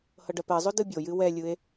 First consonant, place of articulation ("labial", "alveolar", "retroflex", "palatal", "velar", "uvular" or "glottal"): glottal